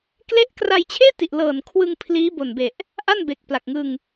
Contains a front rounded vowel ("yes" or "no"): no